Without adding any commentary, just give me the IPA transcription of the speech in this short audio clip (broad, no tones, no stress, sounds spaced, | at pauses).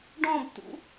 ɖ ɔ̃ b t ṵ